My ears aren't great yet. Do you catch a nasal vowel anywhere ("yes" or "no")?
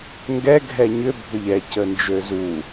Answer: no